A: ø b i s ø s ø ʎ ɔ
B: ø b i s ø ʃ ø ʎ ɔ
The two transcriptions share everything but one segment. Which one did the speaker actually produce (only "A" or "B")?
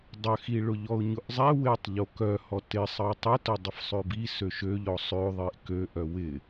B